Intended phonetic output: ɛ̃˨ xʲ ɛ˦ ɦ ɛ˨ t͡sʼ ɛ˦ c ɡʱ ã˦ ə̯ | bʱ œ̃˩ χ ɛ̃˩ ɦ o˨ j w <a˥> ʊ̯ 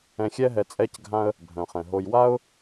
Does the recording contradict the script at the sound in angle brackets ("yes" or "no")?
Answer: no